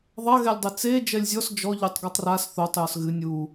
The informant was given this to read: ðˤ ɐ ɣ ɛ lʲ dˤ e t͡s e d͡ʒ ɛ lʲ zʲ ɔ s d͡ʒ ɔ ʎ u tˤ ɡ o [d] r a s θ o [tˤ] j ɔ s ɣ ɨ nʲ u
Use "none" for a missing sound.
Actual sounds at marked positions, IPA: tˤ, tˤ

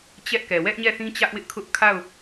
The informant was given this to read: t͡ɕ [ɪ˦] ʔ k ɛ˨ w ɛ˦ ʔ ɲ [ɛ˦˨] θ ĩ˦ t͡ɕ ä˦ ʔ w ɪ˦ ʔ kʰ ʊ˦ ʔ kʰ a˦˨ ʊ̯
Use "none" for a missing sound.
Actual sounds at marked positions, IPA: ɛ˦, ɛ˦˨

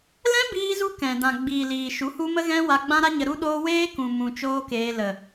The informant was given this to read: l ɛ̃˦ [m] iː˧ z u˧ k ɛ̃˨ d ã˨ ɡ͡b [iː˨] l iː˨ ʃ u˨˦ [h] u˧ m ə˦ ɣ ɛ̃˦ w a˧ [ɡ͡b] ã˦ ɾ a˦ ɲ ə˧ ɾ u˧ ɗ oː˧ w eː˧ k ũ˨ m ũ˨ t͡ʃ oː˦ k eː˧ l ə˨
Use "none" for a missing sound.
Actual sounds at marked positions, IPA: b, iː˨, h, ɡ͡b

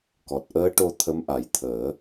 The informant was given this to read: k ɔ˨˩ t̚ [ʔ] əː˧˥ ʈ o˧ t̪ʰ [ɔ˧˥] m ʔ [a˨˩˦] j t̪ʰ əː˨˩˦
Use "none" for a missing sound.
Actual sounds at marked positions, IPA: ʔ, ə˧˥, a˨˩˦

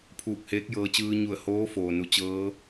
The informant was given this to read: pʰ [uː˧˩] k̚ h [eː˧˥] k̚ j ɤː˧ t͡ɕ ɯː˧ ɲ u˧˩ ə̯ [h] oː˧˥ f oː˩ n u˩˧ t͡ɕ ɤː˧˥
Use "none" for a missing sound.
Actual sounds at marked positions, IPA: uː˧˩, eː˧˥, h

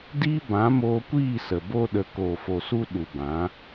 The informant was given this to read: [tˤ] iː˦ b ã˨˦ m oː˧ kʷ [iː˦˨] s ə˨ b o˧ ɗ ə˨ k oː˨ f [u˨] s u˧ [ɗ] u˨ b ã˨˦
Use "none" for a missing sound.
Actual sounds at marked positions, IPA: d, iː˦˨, o˨, ɗ

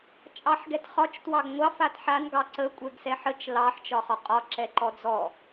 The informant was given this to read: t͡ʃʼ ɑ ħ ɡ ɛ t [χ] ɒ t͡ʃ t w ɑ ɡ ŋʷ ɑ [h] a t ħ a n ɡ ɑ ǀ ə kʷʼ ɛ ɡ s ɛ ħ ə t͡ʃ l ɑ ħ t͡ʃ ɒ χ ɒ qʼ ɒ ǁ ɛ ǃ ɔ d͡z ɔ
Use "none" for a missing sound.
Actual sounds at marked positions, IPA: χ, f

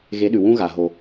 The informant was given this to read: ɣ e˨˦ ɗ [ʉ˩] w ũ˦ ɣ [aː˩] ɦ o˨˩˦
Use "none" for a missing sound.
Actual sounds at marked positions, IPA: ʉ˩, a˩

